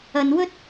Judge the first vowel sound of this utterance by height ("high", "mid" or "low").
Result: low